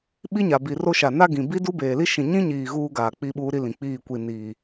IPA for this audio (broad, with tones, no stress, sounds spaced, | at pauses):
ɓ i˦ ɲ a˨ b i˨ r o˦ ʃ a˨ n a˦ ɡ ĩ˨ b i˦ d u˦ b eː˨ l i˦ ʃ ĩ˨ ɲ ĩ˦ ɲ iː˨ ɣ uː˦ ɡ aː˨ k͡p i˦ ɓ uː˦ ɾ i˦ l ĩ˨ k͡p iː˦˨ kʷ i˨ n iː˨